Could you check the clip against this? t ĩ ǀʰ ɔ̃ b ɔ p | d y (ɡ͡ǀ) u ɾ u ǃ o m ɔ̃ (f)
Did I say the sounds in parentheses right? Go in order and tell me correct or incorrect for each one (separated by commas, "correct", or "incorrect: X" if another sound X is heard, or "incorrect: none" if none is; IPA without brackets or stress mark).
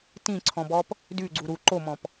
correct, incorrect: p